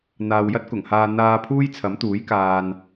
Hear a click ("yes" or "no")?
no